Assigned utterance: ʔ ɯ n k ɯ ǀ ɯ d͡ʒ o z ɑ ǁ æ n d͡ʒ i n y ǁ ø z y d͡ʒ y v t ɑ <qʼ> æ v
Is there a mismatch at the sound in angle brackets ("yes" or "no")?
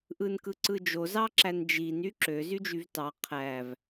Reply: yes